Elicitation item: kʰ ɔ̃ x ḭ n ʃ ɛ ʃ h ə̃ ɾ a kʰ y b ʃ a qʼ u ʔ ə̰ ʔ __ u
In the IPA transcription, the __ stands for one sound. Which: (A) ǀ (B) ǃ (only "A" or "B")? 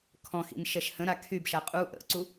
A